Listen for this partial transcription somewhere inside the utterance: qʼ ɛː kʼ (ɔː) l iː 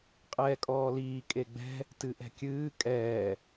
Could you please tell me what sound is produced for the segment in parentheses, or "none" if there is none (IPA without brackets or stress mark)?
ɔː